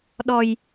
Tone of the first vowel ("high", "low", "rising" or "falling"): low